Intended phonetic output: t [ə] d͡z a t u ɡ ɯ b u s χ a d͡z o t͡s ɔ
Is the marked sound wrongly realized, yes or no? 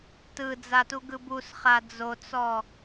yes